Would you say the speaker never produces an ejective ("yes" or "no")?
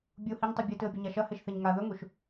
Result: yes